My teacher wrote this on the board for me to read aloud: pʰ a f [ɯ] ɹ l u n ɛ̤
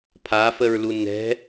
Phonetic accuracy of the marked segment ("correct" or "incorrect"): incorrect